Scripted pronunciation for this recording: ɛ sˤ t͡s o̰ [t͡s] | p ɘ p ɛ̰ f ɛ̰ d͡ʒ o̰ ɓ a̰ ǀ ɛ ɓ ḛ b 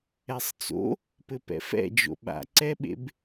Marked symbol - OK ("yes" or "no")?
no